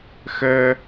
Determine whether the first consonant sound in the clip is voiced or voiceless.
voiceless